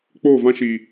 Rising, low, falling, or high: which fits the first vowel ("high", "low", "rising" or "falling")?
falling